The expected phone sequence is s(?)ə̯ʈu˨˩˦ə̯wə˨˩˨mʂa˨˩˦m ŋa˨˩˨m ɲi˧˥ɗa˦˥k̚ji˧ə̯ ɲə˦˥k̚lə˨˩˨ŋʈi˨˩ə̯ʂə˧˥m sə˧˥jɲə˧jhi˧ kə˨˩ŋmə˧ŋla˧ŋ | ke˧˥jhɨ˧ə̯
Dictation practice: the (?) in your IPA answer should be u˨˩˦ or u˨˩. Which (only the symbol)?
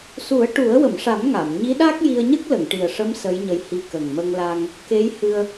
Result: u˨˩˦